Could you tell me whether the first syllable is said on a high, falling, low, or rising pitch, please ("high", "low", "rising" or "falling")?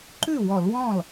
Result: falling